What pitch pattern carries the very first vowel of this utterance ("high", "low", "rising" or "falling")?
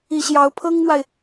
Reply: low